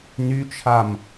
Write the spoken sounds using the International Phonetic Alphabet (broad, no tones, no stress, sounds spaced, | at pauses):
n y t͡ʃʰ a m